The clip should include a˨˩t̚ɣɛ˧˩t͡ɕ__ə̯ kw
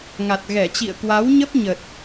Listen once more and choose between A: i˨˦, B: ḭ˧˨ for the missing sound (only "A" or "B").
B